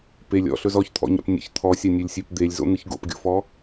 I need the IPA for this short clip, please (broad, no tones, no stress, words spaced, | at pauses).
pelʲ ɔ̰ɬɵz ɔçt̪ʰɔ̰ɲa̰p nʲə̰ç t̪ʰɔsʲanʲølʲsʲep d̪elʲzo̰n̪ɨç ɡo̰pɡʲo̰fɔ